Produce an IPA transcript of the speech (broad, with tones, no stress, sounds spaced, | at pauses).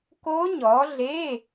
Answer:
k o˦˥ ɲ ɔ˨˦ ɮ e˧˥˧